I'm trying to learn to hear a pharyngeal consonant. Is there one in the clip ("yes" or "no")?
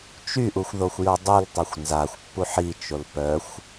yes